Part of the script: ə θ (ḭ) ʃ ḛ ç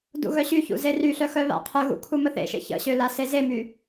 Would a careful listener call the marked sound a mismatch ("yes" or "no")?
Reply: yes